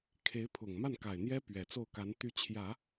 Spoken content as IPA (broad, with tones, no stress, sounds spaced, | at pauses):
kʰ e˧˥ ɪ̯ pʰ ʊ˨˩ ŋ m a˥˩ n k a˨˩ ɪ̯ n̪ j ɛ˥ p ɥ ɛ˨˩ t͡s o˥˩ ʊ̯ k a˧˥ n t̪ y˧˥ t͡ɕʰ j ä˨˩˦